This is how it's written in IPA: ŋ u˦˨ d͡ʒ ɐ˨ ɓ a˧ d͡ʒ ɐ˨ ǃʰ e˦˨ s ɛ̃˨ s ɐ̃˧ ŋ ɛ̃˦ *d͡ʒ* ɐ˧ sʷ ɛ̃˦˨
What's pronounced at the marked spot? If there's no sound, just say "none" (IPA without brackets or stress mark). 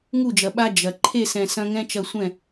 t͡ʃ